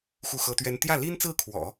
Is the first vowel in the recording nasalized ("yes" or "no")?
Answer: no